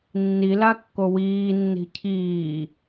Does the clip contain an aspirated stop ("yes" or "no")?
yes